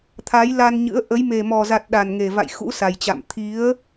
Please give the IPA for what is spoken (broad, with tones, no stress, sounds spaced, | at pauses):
t̪ʰ a˨˦ j l a˧ n ɲ ɨ̰˧˥ ə̯ ʔ ə˨˦ j m e˨˩ m ɔ˨˩ z a˨˩ t̚ ɗ a˨˩ n ŋ e˨˩ v a̰˧˨ j x ṵ˧˥ s a˨˩ j t͡ɕ a̰˧˨ m t̪ʰ i˨˦ ə̯